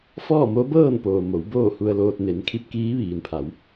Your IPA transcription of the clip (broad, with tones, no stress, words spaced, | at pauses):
fɔː˥˨mo˧˥bɤː˥˨n poː˩ mo˩˧wboː˥˨hu˧ə̯loː˧t̚ ne˩˧nkʰi˧˥p̚kiː˧˥ ʋiː˩npʰa˩˧w